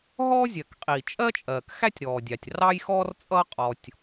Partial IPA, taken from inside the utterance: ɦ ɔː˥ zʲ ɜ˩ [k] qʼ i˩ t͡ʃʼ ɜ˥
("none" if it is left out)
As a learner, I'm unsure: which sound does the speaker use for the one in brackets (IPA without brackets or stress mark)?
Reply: k